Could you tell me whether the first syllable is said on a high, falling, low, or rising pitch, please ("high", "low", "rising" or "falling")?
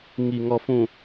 low